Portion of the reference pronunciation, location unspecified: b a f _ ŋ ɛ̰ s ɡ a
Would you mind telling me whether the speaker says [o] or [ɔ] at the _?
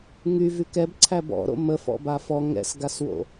ɔ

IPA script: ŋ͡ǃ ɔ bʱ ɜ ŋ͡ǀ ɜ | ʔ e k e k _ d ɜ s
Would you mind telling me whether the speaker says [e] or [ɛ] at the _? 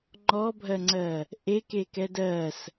ɛ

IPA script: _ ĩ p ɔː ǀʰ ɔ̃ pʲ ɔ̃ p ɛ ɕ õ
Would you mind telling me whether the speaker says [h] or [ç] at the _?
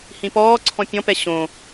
h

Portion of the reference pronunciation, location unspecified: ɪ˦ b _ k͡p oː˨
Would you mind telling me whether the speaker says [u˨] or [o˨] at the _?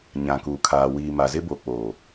o˨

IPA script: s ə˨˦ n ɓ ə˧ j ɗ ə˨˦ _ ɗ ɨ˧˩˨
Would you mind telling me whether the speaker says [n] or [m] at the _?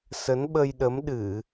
m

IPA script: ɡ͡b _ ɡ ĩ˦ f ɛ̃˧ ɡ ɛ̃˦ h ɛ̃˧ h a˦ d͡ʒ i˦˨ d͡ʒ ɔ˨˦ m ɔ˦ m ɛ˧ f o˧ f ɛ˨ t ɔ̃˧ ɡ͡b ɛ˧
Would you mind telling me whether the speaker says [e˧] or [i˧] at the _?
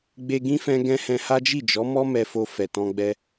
e˧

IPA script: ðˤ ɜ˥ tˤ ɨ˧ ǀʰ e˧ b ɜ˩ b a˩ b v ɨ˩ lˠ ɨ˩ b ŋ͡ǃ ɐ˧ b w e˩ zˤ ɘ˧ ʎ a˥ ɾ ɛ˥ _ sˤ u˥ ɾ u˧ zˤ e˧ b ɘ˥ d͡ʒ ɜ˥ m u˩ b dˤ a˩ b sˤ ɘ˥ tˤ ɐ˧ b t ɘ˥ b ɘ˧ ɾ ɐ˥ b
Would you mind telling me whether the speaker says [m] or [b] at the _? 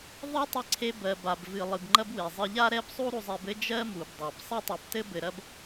b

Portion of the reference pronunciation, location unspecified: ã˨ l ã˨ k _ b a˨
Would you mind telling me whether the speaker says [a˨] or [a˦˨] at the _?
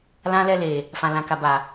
a˨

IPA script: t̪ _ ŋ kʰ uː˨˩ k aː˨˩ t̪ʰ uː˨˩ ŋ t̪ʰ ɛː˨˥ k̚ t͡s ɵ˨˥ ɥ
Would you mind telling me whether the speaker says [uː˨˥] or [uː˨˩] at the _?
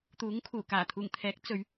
uː˨˥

